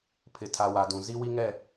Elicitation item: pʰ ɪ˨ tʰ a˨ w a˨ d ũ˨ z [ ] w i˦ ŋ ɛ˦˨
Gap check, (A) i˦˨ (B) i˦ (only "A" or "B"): B